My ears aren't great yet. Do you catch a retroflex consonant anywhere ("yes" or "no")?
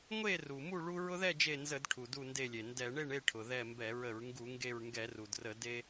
yes